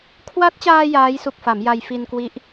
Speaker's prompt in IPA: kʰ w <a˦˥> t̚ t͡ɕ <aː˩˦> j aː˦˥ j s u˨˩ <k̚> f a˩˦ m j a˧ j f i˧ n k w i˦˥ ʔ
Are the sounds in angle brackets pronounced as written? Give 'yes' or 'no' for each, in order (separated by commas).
yes, no, yes